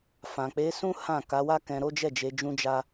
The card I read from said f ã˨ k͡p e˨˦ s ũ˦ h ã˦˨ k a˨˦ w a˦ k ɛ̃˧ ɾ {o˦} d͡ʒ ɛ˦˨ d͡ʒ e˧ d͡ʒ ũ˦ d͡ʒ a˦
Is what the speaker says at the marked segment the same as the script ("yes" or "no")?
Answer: yes